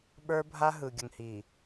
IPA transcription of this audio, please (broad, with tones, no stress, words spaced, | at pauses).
ɓə˞˦bʱa˦ ɦɯ˨ɡʲə˨ŋhi˨